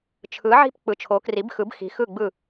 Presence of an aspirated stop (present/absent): present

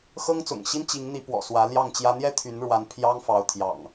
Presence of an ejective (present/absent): absent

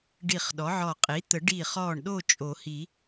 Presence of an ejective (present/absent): present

